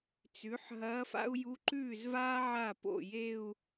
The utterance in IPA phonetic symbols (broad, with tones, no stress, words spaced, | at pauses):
t͡sʉ˩˥ħ ɦɐː˧˥fa̰˥u̯ ju˧˥ǃʉː˥˩zvaː˥ ʕa˥˩ po̰˥˩je˥˧u̯